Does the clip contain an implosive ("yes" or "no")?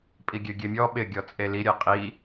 yes